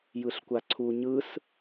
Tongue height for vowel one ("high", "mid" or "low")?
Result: high